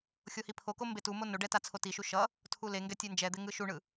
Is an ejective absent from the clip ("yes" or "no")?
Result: yes